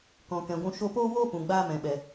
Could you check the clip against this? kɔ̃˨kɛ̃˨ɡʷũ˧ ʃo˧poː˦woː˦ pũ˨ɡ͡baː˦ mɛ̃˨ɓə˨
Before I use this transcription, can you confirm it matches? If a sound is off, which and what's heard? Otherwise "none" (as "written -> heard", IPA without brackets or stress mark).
ə˨ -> ɛ˨